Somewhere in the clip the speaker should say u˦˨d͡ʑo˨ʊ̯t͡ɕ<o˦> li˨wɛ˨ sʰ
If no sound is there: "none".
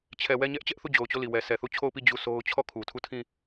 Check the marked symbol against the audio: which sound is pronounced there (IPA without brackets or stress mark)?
o˦˨